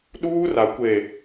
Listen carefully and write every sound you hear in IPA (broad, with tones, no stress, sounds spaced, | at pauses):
ɗ uː˦ r a˨ kʷ e˨